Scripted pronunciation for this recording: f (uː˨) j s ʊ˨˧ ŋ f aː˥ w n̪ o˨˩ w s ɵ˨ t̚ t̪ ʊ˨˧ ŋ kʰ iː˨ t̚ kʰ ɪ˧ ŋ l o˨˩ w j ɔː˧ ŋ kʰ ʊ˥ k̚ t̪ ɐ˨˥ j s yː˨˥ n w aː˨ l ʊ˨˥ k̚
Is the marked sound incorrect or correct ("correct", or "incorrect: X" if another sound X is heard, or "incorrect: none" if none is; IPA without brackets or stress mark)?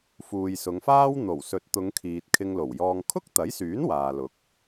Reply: correct